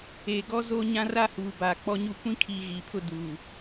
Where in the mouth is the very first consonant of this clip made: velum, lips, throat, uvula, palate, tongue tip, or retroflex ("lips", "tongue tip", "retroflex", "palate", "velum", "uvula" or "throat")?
velum